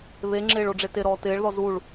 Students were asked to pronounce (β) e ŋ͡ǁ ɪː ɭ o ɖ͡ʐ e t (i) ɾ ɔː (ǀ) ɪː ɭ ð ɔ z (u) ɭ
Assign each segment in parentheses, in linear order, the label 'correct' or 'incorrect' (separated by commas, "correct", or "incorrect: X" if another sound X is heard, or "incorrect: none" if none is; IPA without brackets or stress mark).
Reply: correct, incorrect: ɪ, incorrect: t, correct